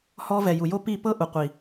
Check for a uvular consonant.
present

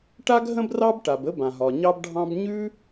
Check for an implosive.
absent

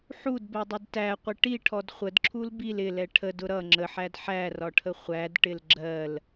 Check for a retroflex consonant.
present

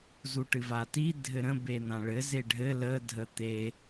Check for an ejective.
absent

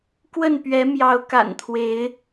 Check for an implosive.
absent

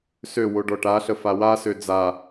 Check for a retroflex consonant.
present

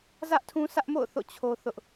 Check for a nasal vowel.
present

